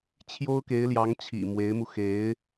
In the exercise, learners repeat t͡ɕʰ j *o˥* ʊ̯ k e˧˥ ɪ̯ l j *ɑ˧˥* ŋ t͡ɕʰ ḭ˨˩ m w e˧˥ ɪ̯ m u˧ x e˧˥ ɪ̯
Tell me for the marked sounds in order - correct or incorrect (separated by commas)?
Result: correct, correct